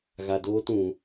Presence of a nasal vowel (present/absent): present